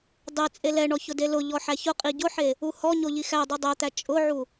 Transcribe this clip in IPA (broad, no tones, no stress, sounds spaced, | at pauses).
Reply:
dˤ e t͡sʼ e l ɛ ɳ ɔ ç ʊ d e l ʊ ʎ ɔ ħ æ ç ʊ qʼ i ɟ ʊ ħ e | u h ɔ ɲ o ʎ i x æ dˤ u dˤ æ t̪ æ t͡ʃʼ ʊ ʕ u